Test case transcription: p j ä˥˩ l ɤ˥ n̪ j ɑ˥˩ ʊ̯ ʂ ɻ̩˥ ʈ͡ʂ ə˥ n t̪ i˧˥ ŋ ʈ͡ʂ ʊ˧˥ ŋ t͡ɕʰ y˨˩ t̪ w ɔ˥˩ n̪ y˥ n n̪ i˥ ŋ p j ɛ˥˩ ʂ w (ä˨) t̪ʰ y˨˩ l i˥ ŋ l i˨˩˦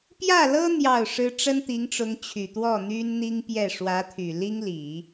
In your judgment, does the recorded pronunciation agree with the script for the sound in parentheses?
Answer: no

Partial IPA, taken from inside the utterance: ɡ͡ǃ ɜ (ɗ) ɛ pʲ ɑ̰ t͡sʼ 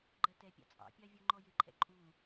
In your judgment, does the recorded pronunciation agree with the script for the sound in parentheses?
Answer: no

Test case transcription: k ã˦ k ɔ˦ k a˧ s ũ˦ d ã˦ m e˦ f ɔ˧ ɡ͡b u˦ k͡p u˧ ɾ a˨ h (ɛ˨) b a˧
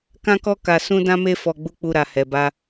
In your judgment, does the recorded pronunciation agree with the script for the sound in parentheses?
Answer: yes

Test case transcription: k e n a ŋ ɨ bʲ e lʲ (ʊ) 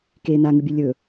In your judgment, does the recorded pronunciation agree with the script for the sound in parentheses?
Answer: no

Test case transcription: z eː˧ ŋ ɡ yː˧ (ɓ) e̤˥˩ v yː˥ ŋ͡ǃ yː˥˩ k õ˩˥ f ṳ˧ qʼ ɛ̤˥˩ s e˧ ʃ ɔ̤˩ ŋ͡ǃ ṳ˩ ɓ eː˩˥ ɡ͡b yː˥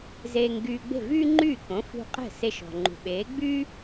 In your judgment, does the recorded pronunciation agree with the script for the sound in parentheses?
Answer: no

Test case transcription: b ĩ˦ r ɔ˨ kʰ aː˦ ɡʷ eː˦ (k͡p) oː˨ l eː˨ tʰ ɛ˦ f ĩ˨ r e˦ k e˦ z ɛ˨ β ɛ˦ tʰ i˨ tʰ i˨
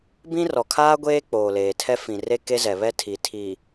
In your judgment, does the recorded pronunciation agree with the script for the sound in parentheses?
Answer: yes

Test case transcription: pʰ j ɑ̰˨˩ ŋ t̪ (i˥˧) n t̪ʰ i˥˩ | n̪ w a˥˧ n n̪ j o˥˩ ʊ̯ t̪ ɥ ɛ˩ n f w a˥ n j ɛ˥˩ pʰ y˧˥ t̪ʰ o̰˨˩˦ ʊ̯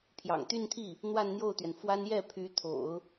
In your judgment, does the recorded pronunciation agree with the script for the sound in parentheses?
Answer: no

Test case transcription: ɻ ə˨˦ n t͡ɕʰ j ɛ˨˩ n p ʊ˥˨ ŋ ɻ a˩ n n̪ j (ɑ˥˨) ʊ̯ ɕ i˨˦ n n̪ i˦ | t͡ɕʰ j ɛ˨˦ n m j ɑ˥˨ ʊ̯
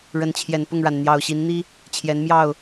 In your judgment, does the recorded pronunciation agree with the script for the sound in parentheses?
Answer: no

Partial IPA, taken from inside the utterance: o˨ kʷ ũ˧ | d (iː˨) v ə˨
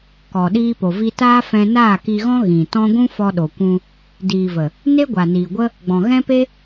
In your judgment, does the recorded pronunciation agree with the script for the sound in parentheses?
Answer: yes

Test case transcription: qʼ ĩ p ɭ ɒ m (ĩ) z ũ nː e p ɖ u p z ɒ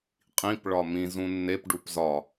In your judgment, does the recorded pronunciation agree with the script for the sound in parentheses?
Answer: yes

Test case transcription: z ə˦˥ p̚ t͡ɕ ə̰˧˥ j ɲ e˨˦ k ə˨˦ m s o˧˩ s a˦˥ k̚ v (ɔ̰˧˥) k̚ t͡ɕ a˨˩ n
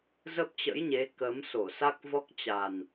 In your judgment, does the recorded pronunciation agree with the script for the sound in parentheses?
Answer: no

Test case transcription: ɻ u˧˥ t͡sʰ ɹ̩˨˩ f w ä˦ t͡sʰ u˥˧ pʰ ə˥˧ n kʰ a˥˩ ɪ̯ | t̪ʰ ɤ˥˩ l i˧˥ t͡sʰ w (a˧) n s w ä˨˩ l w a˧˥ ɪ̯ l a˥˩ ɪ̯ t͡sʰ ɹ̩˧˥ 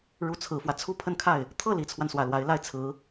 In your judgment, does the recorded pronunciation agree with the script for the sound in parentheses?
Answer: yes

